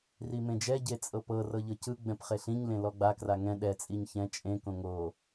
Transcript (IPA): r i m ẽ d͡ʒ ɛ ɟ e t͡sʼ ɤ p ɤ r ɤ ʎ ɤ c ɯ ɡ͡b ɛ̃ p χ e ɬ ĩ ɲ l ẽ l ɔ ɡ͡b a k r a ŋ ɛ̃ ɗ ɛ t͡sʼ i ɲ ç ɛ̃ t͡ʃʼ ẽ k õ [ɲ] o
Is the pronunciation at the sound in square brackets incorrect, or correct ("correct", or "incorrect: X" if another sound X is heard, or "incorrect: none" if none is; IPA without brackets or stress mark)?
incorrect: ŋ